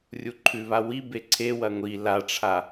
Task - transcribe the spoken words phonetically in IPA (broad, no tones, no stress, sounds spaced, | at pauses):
rʲ u ǃʰ ʉ β a w i b e ǀʰ e w ɐ ŋʷ i l a ʈ͡ʂʰ a